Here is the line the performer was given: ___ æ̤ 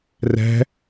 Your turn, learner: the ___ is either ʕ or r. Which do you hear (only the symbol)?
r